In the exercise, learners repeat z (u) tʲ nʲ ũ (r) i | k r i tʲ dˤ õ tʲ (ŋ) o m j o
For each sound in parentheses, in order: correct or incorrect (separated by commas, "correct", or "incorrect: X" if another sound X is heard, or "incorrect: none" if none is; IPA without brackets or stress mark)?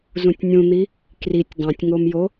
incorrect: ũ, incorrect: n̪, correct